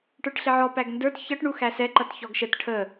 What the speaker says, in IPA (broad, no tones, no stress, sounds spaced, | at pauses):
ʈ ə˞ ʈ ɬ ɪ ʕ ɔ p æ ɡ n d ə˞ t ç ʌ ʈ ɳ u x æ s ɛ ǃ ʌ t ç ɔ ɡ ʃ ə t ʈʰ ə